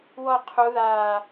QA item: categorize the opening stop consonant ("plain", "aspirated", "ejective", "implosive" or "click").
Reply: aspirated